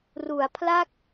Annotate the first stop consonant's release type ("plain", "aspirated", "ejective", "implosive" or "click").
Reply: aspirated